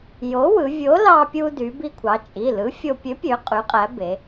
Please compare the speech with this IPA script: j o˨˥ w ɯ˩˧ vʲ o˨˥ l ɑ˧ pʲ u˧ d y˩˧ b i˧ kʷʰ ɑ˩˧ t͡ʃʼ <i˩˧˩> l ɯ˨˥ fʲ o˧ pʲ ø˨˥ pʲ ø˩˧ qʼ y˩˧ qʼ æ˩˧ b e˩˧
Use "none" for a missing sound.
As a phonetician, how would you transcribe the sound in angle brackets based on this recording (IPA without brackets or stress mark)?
i˩˧˩